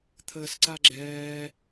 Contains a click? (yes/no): yes